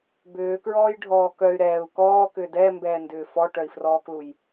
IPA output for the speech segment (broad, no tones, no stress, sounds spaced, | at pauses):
b ʏː k ɹ ɔː j ɖʱ ɔː k œ y̯ ɾ ɛː u̯ k ɔː k ʏː d ɛ m b ɛː n d ʏː f ɔ ʈ œ i̯ f r ɔː k l u j